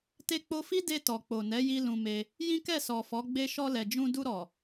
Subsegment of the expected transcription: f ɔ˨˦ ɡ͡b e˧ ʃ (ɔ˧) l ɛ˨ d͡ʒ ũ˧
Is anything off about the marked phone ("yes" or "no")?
no